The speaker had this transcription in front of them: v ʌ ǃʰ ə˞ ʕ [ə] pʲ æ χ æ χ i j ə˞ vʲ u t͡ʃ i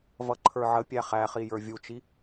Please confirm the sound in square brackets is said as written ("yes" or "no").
yes